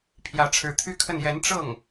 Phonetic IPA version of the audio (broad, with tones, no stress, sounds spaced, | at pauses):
pʰ j ä˧˥ ʈ͡ʂʰ ɻ̩˧˥ t̪ʰ y˥ kʰ ə˥˩ n j ɛ˧˥ n ʈ͡ʂ ɤ˥˩ ŋ